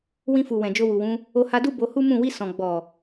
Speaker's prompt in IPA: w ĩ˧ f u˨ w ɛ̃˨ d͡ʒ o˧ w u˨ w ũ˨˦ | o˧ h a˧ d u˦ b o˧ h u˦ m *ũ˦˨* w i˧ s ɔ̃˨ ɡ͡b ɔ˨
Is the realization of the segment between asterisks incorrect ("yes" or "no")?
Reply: no